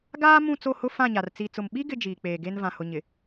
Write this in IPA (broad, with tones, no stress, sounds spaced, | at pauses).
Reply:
ɡ aː˦ m ũ˦˨ t͡s o˦˨ h ʊ˦ f ã˦˨ ɲ a˨ r t͡s i˨ t͡s ʊ˨ m ɓ i˦ ɡ ɪ˦ d͡ʒ iː˨ k͡p eː˨ ɡ e˦ n v ã˨ h ʊ˨ ɲ ɪ˨